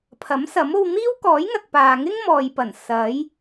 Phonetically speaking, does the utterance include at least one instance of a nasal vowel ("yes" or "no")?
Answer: no